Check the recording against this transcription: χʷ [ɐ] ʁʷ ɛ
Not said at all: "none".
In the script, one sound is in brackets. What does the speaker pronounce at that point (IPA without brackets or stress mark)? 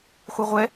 ɐ